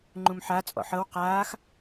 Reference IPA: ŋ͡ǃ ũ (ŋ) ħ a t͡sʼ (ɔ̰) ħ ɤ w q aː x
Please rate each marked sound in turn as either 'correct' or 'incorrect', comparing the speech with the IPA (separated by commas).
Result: incorrect, correct